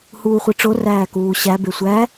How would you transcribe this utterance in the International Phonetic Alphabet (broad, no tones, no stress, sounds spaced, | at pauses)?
h uː χʷ e ʈ͡ʂ o r æː k uː ɕ æ b e sʷ æ